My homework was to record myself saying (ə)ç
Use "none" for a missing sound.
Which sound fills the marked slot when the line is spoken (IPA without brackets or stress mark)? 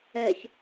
ɛ